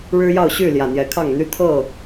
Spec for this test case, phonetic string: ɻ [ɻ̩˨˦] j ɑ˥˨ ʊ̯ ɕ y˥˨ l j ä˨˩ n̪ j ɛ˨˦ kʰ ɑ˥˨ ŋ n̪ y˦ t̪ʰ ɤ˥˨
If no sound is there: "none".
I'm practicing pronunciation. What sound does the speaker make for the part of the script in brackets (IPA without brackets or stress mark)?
ɻ̩˦